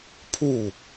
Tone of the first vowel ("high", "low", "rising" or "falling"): falling